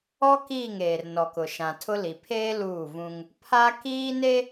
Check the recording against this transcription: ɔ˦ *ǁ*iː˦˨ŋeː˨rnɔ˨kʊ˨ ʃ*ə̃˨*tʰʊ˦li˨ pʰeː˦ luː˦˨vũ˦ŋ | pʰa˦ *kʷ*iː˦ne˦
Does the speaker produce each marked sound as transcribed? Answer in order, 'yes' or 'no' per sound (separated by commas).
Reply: no, no, no